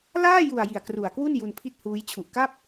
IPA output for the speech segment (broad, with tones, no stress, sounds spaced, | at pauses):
l aː˥˩ j u˨˩ a̯ j i˨˩ a̯ k r u˨˩ a̯ k w u˥˩ n j u˧ n pʰ i˥˩ t̚ h uː˦˥ j t͡ɕʰ u˨˩ ʔ k a˥˩ p̚